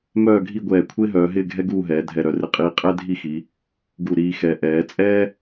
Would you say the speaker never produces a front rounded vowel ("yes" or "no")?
no